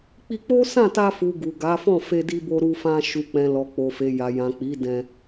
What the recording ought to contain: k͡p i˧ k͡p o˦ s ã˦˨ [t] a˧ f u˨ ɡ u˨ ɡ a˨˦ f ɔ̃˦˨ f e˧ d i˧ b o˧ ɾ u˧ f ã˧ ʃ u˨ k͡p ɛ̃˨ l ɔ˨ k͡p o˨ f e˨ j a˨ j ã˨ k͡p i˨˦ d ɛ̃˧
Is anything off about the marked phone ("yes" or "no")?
no